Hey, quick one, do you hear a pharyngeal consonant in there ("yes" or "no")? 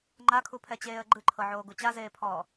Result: yes